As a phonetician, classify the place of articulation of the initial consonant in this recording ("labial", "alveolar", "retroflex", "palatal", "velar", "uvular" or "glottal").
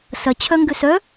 alveolar